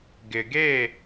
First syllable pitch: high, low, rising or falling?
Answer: low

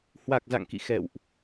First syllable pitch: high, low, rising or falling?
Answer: low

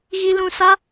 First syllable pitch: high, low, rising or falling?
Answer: high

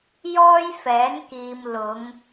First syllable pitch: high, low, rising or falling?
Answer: high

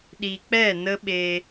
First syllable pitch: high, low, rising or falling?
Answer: low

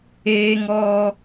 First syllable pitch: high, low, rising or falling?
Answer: high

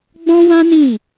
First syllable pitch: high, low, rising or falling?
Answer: high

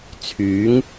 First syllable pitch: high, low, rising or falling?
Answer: rising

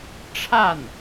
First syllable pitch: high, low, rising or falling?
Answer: falling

